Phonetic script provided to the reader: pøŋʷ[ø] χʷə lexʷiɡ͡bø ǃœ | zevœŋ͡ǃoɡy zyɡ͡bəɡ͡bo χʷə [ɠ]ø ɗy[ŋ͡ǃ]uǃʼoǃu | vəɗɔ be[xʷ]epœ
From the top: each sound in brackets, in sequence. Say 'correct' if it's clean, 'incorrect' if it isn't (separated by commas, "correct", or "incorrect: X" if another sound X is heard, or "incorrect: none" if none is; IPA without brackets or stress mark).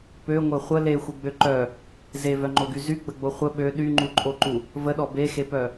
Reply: incorrect: œ, incorrect: ɓ, correct, incorrect: x